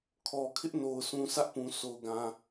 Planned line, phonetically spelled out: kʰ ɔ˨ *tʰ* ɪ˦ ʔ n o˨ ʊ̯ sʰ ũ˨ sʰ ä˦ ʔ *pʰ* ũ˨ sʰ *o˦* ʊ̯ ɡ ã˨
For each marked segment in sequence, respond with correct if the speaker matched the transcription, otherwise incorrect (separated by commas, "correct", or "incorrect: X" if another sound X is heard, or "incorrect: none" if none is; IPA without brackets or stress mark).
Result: incorrect: kʰ, incorrect: p, incorrect: o˨